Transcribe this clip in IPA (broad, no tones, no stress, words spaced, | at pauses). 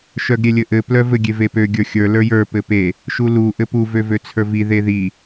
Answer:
ʃœɡɾʲelʲɘʔɘ plœvɘ ɡʲevepø ɡʲə˞xʲə˞ lə˞jə˞ pɘpe | ʃulu ʔɘpu vøvøt͡sʰə˞vi ðeði